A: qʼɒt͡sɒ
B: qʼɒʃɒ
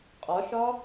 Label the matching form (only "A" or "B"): B